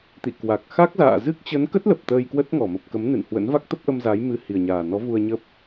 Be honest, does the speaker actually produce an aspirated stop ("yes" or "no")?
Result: no